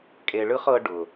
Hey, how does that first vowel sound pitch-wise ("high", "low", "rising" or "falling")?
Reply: low